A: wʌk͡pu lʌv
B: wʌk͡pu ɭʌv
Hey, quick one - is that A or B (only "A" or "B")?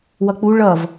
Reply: B